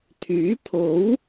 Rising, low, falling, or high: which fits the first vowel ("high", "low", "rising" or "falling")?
rising